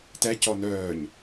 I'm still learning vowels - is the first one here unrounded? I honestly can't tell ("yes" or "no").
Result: yes